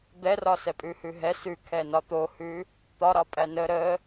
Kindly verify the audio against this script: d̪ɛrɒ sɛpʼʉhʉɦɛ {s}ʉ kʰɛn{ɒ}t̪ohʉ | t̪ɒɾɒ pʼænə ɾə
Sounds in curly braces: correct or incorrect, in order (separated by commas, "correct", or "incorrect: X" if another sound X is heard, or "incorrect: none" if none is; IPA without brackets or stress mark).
correct, correct